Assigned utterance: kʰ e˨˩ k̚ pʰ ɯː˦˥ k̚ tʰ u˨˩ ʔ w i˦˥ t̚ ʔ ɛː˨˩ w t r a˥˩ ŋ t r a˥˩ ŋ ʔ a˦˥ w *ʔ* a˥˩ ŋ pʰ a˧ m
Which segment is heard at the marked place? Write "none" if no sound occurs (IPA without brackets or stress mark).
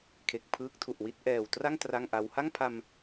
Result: h